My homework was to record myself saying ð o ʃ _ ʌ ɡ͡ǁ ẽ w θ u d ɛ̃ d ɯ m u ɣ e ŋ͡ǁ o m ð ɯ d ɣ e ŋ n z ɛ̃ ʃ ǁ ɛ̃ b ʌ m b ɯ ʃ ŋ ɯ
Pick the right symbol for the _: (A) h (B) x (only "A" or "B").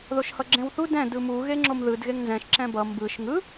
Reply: A